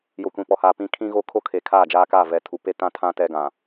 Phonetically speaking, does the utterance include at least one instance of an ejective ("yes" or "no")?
no